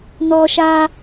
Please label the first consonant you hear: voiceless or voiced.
voiced